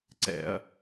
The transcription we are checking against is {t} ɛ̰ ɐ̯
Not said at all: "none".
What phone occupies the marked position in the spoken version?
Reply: ǀ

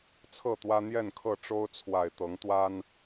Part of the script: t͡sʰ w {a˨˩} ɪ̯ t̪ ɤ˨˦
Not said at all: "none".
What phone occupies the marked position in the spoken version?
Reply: a˨˩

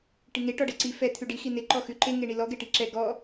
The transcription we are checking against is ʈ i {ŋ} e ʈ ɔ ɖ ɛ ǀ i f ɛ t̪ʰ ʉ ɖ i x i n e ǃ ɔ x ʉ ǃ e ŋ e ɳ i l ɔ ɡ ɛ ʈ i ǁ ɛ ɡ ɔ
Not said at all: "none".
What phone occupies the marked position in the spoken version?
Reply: ŋ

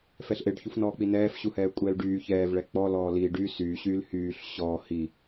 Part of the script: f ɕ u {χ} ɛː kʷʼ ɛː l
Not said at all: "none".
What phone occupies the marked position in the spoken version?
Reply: h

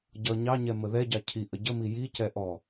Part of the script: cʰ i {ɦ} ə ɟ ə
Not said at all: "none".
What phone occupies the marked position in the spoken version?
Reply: ʔ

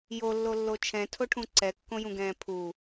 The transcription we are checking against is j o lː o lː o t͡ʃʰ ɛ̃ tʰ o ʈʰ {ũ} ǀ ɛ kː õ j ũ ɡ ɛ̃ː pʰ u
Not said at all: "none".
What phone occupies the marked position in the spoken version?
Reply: ũ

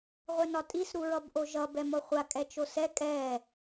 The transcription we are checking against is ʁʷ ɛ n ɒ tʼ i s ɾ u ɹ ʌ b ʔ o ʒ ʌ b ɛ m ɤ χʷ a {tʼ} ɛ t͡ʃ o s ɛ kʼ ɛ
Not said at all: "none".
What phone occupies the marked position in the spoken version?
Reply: kʼ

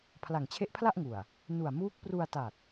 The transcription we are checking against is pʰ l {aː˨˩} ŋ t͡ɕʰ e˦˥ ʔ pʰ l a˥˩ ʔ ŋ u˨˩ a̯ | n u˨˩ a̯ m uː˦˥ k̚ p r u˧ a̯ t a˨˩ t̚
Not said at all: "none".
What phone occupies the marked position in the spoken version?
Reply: a˨˩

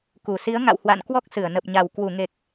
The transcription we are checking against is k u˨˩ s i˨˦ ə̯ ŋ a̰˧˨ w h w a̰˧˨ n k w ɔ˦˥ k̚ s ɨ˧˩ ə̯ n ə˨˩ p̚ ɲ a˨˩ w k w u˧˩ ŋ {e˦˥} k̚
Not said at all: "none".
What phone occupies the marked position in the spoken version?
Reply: e˨˩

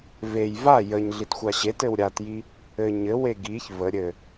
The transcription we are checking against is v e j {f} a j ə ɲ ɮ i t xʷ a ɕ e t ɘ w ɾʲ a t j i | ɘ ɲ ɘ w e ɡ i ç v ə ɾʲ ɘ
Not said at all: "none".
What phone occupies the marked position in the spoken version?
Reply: v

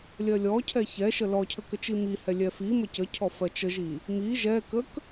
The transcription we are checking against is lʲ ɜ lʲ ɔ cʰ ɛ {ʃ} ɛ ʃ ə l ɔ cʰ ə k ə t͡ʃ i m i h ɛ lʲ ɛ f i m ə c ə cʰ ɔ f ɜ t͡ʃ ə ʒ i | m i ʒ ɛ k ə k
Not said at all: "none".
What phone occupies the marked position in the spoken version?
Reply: ç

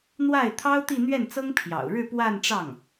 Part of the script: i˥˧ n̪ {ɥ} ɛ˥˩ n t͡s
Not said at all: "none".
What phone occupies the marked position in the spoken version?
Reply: ɥ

